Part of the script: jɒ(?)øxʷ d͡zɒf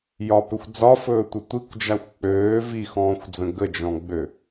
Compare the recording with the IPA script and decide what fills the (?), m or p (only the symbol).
p